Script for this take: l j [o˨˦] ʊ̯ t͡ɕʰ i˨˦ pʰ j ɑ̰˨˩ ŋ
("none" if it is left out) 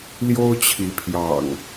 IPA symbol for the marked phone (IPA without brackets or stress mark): o˦